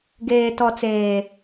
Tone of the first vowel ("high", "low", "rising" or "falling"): low